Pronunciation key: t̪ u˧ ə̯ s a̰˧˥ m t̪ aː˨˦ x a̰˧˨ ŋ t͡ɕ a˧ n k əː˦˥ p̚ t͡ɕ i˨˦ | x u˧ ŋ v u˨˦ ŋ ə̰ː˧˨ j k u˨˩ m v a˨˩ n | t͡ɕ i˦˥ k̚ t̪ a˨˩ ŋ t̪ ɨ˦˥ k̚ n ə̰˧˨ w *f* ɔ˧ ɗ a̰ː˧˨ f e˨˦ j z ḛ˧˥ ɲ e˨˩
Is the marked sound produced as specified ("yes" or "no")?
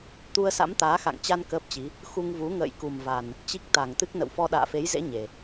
yes